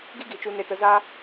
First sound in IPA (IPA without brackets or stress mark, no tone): ɡ